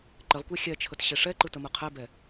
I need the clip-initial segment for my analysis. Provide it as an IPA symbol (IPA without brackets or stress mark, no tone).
ǃ